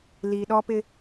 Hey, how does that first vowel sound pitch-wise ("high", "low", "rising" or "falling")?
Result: low